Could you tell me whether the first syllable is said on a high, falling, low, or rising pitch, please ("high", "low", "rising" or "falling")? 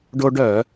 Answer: high